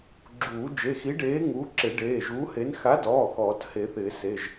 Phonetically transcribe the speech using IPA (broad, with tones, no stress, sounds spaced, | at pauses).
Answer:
ɡ͡ǁ uː˨˩˦ d͡ʒ e˩˧˩ x i˨˥ ɖ eː˨˥ ŋ uː˨˥ ǁ ɪ˨˩˦ ɖ eː˩˧˩ ʒ uː˨˥ h e˨˥ n x a˨˥ d ɔː˩˧˩ x ɔː˨˩˦ t h e˨˩˦ θ ɪː˨˩˦ s e˩˧˩ ʒ